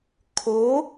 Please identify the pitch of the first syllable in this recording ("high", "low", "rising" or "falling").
rising